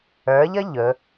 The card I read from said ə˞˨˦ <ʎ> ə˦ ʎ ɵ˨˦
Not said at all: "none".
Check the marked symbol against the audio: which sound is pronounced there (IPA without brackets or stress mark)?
ʎ